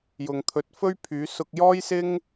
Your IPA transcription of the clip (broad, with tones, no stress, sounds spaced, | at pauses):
j ʊ˨ ŋ t̪ʰ ɵ˨˥ t̚ f ɵ˥ ɥ pʰ yː˨˥ s ʊ˧ k̚ j ɔː˥ j s ɪ˥ ŋ